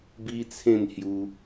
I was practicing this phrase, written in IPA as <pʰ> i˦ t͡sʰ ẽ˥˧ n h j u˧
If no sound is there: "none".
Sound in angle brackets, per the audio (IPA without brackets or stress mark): b